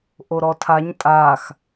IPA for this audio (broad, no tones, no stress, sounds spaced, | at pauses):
ʔ o ɾ ɔ tʰ a ɲ tʼ a x